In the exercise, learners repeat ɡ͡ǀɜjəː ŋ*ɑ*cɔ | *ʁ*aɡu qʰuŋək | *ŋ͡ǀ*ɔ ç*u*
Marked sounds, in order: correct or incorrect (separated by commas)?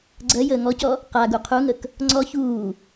incorrect, incorrect, correct, incorrect